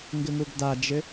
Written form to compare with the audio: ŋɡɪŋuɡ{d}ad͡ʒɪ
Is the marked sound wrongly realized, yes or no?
no